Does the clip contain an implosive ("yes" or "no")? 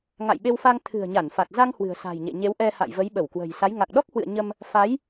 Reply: yes